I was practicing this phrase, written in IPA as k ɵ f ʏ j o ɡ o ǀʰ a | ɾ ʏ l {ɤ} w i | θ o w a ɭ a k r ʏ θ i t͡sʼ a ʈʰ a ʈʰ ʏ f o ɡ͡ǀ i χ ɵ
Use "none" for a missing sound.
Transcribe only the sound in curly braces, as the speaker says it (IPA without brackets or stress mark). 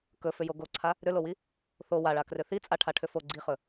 o